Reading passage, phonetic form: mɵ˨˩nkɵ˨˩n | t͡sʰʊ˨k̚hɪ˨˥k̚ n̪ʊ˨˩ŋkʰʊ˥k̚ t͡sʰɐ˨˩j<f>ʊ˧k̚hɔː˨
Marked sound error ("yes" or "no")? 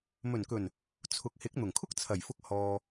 no